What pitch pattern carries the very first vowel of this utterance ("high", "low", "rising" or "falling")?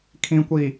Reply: low